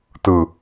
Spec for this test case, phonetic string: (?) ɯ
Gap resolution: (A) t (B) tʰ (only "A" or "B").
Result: A